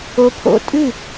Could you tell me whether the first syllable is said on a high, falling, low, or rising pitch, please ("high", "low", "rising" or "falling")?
rising